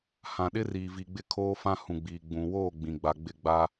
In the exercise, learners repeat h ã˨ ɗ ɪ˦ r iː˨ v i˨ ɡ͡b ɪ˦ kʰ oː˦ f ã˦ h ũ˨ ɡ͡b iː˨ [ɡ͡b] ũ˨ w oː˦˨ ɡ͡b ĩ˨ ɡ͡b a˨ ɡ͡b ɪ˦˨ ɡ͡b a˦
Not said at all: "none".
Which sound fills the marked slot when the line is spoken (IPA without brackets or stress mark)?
ɡ͡b